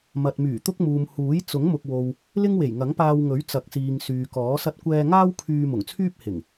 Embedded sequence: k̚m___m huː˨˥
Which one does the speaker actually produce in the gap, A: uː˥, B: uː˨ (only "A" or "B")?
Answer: B